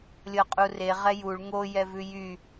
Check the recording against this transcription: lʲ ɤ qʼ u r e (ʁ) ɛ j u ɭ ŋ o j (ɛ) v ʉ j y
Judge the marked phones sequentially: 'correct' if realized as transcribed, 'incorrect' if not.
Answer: correct, correct

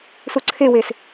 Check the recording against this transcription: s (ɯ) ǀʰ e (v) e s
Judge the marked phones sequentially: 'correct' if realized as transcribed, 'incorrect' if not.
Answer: incorrect, incorrect

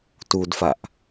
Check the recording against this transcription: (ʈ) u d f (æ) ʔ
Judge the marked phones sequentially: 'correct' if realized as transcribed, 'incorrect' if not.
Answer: incorrect, incorrect

